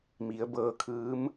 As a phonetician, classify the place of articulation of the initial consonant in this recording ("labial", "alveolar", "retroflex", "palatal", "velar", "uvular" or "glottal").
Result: labial